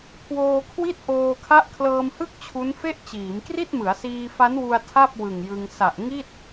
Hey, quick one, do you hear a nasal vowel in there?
no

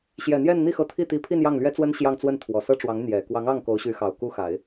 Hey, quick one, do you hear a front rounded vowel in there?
yes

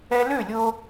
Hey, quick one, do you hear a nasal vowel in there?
no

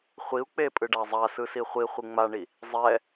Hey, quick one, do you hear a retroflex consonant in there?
yes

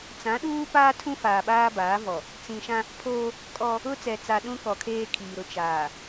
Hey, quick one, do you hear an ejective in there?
yes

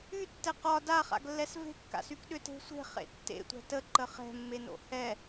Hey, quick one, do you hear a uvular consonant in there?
yes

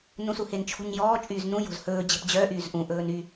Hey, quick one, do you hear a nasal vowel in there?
yes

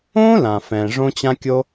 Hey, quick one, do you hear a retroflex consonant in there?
yes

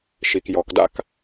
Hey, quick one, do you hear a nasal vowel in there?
no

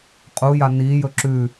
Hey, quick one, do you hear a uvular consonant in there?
yes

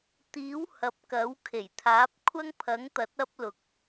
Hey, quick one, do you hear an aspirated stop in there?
yes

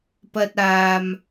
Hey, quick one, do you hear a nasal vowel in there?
no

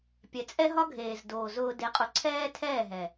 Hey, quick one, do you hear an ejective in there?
yes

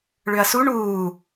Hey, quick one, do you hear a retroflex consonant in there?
yes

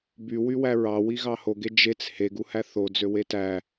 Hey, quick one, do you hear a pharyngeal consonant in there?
no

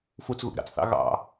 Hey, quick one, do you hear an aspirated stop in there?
no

